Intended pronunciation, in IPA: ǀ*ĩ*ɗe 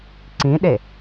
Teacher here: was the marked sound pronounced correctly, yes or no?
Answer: yes